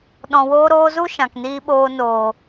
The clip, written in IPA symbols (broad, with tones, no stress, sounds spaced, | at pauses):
ɗ ɔ̃˨ w oː˧ ɾ oː˧ z u˦ ʃ ã˨ k n iː˧ ɓ oː˧ n oː˨